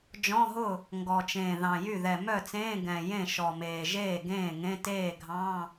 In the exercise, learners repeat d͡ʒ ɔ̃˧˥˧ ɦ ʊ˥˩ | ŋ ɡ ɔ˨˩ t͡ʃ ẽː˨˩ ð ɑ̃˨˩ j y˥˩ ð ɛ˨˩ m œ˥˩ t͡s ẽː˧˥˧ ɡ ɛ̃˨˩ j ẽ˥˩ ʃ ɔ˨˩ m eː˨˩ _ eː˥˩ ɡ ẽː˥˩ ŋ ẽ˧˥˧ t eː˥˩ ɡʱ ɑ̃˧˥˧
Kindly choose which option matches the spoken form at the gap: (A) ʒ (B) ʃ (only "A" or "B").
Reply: A